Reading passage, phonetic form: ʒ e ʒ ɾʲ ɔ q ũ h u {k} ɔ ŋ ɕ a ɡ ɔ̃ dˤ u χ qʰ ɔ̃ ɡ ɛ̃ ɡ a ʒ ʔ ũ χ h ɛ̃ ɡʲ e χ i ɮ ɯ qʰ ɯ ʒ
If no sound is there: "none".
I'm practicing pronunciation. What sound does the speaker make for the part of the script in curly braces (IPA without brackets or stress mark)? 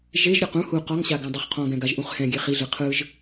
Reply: q